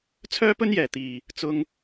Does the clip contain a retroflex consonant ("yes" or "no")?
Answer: no